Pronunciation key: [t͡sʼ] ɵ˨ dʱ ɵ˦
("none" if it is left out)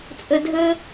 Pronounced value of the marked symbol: t͡sʼ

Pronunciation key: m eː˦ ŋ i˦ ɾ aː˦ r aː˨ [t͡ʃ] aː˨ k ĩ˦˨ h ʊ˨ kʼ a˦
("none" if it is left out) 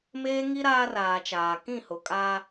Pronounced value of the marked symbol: t͡ʃ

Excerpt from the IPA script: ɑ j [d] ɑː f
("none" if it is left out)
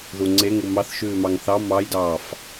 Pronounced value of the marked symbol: d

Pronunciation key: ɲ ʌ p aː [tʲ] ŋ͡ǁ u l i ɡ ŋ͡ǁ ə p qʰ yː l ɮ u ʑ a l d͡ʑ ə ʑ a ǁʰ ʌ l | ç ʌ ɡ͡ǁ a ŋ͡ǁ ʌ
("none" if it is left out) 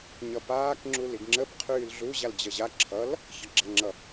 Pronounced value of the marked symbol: k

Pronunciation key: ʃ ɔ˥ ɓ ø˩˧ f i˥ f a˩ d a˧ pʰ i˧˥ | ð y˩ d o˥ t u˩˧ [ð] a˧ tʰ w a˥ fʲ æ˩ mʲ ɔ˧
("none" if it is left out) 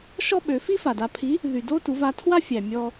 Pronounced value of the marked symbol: v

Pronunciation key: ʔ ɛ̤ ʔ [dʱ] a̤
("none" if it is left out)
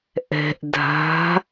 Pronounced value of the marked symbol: dʱ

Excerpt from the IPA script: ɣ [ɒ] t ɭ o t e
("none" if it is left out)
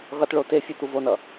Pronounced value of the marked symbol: ʌ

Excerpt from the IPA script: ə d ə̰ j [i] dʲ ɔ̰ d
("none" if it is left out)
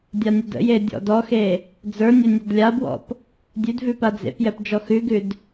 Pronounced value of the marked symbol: e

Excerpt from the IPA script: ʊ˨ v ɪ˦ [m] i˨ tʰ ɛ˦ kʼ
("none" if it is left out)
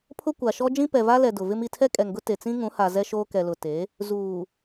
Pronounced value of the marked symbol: m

